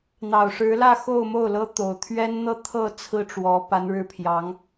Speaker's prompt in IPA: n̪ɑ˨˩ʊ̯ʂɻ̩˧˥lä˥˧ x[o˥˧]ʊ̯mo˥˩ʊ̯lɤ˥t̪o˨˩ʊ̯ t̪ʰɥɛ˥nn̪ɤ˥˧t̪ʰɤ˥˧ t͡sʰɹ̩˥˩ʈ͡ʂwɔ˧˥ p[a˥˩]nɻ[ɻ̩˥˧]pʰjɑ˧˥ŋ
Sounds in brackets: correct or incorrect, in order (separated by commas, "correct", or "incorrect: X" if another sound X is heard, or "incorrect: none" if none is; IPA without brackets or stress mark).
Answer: correct, incorrect: a˧˥, incorrect: ɻ̩˥